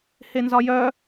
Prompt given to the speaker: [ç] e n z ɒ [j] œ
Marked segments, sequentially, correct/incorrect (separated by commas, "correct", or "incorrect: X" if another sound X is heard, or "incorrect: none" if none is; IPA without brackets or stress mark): incorrect: h, correct